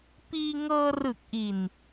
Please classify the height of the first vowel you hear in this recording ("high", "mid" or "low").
high